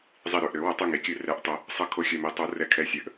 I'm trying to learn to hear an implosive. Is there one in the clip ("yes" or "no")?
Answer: no